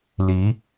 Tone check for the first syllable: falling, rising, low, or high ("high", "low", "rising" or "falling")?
rising